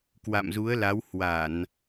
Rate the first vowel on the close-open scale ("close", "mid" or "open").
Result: open